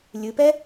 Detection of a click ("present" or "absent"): absent